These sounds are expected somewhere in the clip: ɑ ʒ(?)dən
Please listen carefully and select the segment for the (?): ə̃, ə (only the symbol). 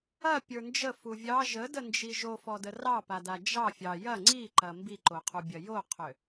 ə